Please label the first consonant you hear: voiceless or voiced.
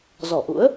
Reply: voiced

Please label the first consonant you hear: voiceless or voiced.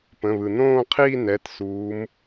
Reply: voiceless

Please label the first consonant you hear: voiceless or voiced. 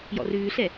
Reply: voiced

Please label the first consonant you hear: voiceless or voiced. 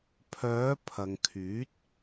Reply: voiceless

